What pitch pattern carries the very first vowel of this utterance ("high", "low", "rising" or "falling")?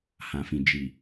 low